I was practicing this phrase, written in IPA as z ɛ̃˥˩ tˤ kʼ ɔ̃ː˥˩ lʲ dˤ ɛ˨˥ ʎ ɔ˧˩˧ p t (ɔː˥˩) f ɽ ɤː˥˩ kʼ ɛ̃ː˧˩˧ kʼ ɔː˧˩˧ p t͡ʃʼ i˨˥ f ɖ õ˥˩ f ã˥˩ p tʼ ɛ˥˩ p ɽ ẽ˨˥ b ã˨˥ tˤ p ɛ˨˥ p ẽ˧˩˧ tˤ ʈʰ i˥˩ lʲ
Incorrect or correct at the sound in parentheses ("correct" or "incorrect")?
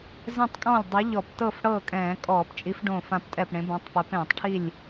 incorrect